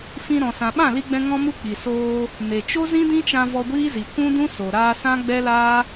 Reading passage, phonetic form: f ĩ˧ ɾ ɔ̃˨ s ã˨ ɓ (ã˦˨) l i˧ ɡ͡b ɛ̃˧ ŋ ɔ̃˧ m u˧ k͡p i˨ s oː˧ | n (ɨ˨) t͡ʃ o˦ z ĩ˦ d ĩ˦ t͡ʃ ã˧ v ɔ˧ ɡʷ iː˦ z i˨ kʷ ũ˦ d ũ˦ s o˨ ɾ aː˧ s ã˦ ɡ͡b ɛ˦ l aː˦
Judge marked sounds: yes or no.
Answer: yes, no

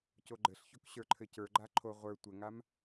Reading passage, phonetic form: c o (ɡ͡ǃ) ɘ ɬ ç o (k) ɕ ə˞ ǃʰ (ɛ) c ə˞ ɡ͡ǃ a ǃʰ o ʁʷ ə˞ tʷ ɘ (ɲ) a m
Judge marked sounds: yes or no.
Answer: yes, yes, no, no

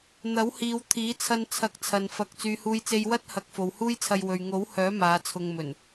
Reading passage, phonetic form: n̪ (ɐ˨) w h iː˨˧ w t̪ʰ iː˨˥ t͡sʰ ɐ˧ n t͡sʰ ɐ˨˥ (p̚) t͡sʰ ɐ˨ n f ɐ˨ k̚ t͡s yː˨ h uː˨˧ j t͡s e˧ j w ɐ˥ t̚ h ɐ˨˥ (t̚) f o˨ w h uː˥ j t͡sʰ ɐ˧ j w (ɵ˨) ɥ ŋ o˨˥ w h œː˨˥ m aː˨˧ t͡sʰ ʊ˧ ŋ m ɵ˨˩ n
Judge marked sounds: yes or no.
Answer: no, no, no, yes

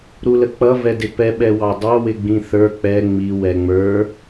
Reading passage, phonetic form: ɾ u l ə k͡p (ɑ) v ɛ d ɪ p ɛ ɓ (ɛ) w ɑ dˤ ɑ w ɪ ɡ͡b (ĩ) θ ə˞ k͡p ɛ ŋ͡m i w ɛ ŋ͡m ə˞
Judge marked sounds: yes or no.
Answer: no, yes, yes

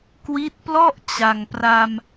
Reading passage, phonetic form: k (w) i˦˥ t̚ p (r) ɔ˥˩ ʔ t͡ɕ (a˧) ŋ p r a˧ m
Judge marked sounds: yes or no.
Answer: yes, no, yes

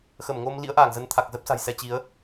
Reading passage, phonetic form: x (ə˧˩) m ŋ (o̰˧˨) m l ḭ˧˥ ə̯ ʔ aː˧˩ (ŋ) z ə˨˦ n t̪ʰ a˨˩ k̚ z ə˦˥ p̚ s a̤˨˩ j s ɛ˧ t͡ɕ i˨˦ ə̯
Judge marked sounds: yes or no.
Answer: yes, no, yes

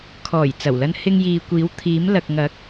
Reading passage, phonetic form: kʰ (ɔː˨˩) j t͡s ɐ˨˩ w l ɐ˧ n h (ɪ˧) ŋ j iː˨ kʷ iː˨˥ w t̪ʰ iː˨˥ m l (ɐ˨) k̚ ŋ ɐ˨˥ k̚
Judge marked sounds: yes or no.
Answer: yes, yes, yes

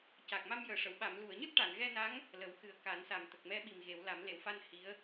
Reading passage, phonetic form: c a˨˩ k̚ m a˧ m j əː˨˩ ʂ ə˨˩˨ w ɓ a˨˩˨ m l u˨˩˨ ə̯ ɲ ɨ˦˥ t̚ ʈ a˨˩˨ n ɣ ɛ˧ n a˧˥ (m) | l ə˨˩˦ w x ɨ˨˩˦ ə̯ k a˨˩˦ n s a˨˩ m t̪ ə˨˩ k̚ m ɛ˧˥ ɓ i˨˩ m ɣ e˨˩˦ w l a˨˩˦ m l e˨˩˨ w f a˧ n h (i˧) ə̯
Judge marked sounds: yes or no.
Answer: no, no

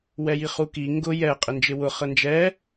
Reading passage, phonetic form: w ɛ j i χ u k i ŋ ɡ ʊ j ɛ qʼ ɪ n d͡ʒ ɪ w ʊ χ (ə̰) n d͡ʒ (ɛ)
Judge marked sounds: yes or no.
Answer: no, yes

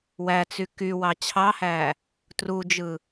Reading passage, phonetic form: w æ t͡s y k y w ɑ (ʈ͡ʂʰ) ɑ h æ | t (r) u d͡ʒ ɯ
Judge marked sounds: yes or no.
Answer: no, yes

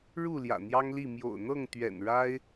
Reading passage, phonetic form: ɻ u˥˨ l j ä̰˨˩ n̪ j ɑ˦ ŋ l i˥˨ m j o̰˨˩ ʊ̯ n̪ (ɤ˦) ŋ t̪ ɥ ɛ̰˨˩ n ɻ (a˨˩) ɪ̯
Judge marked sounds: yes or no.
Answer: no, no

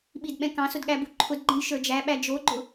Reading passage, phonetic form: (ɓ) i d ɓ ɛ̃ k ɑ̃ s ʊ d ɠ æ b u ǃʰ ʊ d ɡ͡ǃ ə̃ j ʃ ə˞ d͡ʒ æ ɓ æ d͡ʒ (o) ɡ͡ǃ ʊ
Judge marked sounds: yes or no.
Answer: yes, yes

